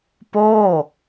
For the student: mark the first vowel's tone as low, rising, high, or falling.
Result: falling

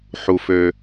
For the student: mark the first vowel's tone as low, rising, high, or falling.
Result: low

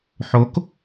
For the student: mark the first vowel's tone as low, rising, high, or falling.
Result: rising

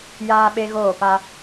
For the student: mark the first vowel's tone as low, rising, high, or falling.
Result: high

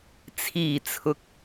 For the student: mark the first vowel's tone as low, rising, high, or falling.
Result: low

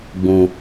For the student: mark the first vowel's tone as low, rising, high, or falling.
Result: low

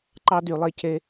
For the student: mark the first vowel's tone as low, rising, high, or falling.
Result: high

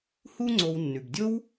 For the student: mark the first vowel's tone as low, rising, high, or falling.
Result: high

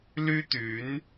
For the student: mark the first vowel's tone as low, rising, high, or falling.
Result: high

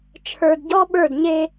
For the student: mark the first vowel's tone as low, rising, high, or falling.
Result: low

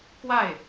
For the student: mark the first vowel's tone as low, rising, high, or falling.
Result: falling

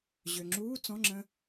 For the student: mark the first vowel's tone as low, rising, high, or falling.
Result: low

